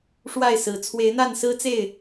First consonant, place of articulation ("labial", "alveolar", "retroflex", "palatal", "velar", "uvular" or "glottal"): retroflex